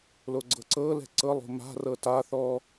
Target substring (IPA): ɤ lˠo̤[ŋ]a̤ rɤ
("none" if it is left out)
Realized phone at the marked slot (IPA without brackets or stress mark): m